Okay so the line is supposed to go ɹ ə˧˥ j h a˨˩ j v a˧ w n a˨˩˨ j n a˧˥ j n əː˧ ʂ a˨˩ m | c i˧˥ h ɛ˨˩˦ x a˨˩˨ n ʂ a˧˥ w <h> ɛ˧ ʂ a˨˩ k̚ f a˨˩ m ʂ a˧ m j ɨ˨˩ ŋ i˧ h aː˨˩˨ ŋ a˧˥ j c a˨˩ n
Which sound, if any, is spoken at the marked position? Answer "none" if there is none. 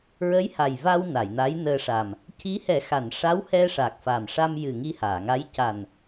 h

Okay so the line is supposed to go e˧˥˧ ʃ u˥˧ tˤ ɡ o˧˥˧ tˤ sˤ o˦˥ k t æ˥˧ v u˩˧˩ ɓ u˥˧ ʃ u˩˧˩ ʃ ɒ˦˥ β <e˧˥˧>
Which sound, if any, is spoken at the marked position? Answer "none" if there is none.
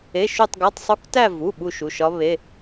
e˧˥˧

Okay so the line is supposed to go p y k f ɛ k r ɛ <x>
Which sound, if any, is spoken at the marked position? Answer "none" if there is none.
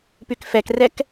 k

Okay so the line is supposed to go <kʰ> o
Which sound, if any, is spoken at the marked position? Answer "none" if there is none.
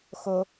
x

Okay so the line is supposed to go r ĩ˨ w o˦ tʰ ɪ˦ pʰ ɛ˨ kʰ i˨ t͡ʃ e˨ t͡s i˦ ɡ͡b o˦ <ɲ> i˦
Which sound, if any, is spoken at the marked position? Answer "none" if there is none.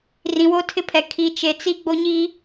ɲ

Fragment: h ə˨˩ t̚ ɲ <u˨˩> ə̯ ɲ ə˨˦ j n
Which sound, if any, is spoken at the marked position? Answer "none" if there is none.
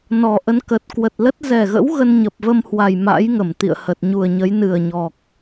u˨˩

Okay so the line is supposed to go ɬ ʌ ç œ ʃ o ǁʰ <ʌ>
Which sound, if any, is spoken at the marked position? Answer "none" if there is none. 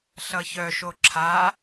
a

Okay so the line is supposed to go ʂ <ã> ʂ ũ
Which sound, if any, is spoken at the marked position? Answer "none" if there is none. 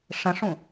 ə̃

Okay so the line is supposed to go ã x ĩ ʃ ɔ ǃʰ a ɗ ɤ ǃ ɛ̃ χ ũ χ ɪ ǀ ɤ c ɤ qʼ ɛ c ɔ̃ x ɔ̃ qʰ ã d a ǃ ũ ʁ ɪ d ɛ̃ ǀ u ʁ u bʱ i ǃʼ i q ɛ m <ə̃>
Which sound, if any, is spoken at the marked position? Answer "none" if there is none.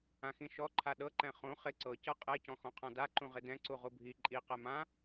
ã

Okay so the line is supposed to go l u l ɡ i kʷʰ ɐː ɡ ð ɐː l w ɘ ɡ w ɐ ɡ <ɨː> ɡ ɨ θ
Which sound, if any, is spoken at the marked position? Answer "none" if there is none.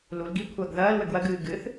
ɨː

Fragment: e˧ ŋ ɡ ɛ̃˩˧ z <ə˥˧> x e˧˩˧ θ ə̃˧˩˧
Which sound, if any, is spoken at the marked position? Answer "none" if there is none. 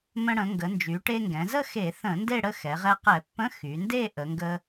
ə˥˧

